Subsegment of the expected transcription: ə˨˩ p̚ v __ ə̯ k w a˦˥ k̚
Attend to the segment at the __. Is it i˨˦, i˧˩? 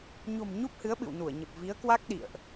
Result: i˨˦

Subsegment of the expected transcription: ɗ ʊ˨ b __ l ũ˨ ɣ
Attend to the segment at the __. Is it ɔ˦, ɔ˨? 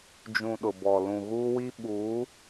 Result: ɔ˨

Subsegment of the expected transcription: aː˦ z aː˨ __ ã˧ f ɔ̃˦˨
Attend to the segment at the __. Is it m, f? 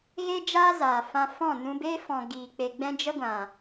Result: f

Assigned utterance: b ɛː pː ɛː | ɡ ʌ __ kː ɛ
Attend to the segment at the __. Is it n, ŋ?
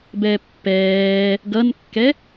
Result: n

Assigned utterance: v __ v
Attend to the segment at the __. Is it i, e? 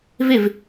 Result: e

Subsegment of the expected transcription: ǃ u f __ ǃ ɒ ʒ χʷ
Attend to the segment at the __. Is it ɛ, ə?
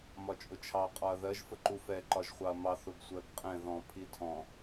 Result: ɛ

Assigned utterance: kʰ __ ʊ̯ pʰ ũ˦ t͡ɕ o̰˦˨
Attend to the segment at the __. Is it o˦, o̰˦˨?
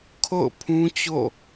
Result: o̰˦˨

